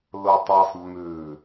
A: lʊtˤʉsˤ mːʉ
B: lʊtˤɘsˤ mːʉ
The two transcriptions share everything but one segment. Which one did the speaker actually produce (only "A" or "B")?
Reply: B